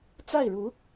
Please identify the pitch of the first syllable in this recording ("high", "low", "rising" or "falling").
falling